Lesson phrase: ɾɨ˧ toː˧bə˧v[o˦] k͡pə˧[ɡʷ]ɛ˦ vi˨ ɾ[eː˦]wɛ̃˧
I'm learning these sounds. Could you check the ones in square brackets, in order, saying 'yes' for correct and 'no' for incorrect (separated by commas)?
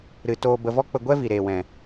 no, yes, no